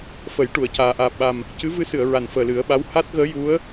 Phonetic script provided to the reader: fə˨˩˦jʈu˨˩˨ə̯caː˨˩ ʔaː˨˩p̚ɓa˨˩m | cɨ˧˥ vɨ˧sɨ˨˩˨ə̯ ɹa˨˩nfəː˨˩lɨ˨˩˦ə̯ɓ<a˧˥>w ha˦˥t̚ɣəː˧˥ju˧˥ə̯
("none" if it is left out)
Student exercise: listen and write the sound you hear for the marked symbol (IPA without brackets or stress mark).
a˧˥